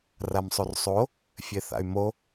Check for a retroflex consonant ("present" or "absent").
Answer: absent